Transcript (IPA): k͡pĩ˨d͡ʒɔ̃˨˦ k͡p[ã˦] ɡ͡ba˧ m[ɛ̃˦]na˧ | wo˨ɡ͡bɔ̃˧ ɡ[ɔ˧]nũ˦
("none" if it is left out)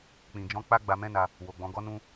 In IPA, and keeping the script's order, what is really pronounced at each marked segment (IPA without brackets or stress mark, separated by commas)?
a˦, ɛ̃˦, ɔ˦